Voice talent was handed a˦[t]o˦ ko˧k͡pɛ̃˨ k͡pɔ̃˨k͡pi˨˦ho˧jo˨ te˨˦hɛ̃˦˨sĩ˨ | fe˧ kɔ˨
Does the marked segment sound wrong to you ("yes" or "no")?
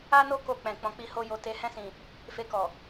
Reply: yes